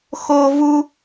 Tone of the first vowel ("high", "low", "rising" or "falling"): high